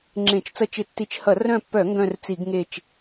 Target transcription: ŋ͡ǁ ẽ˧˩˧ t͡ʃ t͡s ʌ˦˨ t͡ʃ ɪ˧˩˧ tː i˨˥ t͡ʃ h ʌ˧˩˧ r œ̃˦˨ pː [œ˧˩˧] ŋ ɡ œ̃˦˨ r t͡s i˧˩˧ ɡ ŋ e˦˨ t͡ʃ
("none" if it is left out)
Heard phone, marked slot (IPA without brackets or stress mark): œ˧˩˧